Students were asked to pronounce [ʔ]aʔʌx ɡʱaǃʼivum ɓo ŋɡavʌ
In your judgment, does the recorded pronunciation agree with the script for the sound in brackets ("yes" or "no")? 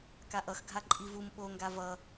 no